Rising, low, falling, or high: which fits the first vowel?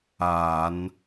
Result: low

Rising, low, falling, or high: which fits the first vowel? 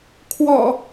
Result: low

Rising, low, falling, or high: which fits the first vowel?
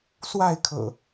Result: falling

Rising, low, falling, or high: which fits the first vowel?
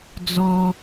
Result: high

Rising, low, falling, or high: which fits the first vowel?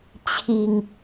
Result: low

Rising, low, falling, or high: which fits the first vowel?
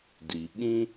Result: low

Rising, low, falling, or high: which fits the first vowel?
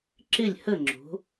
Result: falling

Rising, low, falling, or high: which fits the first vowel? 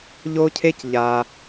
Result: high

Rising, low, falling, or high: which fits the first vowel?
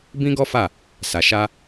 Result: high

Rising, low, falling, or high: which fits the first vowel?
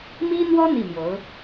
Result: high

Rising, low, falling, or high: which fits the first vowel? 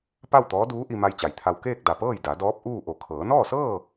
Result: falling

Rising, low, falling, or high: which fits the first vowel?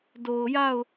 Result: low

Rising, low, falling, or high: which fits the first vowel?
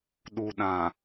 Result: low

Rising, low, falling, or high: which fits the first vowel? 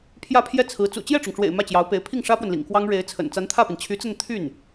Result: falling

